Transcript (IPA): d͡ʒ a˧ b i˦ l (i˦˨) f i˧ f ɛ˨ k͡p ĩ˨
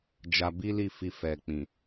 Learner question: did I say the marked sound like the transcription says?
yes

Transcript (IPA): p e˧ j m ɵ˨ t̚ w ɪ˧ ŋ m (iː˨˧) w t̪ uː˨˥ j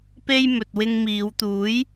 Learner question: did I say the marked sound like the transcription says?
yes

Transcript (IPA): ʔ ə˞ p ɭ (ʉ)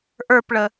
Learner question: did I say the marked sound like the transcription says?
no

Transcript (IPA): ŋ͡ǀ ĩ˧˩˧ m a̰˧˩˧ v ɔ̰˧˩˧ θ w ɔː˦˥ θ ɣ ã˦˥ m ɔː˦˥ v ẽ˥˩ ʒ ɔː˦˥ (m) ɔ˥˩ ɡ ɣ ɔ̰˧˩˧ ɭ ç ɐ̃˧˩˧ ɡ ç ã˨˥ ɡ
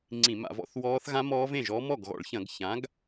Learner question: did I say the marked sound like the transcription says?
yes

